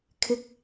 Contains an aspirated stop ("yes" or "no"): yes